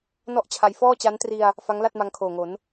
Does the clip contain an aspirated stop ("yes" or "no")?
yes